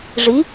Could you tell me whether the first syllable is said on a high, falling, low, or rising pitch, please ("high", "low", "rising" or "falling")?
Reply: rising